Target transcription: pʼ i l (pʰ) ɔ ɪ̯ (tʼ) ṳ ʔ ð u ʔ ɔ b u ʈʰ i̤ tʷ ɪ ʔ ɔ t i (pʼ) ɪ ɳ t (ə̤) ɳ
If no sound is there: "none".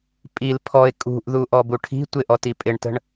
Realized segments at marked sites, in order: pʰ, kʼ, pʼ, ə̤

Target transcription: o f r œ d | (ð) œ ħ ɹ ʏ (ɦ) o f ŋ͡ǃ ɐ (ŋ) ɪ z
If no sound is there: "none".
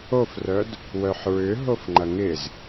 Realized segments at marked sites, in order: w, ɦ, ŋ

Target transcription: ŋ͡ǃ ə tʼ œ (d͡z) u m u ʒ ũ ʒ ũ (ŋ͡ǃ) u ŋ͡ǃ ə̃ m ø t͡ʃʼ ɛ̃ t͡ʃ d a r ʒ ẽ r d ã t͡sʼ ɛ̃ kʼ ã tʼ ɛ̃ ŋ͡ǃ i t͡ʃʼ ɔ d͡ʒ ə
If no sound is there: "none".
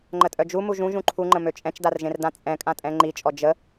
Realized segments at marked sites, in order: d͡ʒ, ǃʰ

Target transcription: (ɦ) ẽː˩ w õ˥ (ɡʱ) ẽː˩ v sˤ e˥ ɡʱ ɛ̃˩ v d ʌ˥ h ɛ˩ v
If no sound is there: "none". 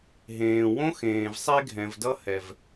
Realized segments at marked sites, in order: ɦ, x

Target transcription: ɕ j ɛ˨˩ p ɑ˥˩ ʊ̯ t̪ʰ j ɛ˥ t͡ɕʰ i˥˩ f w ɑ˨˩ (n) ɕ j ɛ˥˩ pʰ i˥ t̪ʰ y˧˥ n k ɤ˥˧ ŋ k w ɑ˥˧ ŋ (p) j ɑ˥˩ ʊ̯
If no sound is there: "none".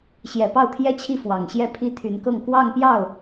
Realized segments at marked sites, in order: ŋ, p

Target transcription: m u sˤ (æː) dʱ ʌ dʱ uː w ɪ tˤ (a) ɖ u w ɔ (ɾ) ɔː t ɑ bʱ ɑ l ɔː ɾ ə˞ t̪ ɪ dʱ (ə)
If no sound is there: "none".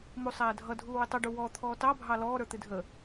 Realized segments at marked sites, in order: æː, ʌ, t̪ʰ, ə

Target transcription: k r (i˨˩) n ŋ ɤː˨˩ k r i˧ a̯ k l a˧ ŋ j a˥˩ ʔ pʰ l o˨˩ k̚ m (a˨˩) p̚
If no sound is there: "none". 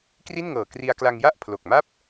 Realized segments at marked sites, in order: i˥˩, a˥˩

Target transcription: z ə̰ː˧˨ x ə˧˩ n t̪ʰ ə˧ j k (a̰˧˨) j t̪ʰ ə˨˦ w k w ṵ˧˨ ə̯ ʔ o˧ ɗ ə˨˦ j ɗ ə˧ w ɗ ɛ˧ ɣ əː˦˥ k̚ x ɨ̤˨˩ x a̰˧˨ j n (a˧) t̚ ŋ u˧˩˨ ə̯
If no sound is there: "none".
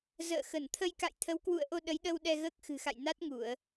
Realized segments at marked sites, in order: a̰˧˨, a˦˥

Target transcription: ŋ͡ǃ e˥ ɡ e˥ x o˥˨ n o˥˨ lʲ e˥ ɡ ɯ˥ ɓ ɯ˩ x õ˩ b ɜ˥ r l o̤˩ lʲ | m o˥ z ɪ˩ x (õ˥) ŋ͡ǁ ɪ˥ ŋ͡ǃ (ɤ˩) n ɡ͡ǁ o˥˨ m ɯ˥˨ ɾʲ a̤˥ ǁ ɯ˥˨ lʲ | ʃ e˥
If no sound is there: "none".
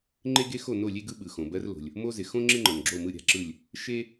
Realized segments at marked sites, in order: õ˥, ɤ˩

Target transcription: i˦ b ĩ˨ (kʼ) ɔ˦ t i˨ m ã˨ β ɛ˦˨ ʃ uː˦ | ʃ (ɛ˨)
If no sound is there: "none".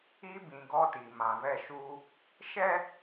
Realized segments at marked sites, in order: ɡ, ɛ˦

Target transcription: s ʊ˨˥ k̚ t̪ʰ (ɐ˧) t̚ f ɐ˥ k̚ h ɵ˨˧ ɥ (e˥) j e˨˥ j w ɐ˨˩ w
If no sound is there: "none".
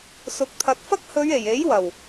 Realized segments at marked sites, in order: ɐ˨, e˨˩

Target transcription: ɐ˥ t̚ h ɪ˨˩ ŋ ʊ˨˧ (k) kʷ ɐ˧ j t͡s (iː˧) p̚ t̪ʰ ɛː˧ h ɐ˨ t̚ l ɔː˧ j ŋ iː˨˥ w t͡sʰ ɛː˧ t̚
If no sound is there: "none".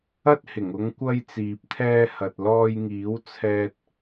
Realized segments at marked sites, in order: ŋ, iː˨

